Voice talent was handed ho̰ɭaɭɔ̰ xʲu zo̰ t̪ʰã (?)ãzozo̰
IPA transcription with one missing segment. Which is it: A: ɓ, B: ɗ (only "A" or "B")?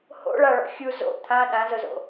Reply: B